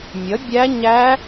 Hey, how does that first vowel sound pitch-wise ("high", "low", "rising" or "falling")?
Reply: rising